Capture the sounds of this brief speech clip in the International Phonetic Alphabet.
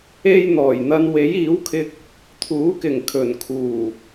e˥j n̪ɔː˨˩jn̪ɐ˧n we˨˥jiː˨˥wkʰɪ˧k̚ | t̪ʰuː˨˥kɪ˨˩ŋ kʰɵ˨˩nkʰuː˨˩

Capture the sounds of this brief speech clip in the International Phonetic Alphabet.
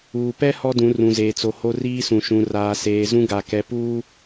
uː˨pɛ˦ hɔ˦dũ˨˦ rũ˨zeː˨t͡so˨ ho˦riː˦sũ˨ ʃũ˨ raː˨seː˨ zũ˦ɡa˨ kɛ˨puː˦

